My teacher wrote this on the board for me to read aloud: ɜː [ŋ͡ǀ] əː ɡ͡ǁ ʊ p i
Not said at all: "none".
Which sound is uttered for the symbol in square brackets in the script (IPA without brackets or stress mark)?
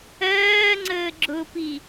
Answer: ŋ͡ǀ